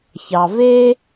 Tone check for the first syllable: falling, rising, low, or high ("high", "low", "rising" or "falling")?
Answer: low